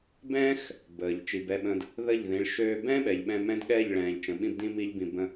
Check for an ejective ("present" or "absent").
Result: absent